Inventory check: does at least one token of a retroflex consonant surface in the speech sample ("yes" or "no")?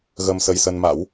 no